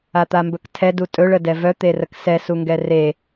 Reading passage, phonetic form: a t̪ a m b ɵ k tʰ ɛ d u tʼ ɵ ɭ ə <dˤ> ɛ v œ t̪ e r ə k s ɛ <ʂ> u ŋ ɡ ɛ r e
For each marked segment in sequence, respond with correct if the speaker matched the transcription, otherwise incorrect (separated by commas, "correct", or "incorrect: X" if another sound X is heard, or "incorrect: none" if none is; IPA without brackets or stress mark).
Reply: incorrect: d, incorrect: s